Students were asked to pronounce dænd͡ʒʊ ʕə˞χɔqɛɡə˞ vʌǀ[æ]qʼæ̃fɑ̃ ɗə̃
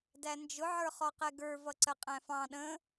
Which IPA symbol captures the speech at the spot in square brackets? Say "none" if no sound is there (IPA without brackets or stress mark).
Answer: ə